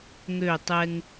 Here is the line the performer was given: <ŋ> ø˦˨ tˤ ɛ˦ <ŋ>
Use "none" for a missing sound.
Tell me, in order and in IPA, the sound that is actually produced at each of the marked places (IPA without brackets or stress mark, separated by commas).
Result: ŋ, ŋ